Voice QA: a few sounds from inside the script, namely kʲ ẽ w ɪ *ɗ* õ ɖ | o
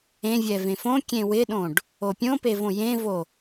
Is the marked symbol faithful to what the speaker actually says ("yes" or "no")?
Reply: yes